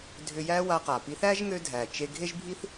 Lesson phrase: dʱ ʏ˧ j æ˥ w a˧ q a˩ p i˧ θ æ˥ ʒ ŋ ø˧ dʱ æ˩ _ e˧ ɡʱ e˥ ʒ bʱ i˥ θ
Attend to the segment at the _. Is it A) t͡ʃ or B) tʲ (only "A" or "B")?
A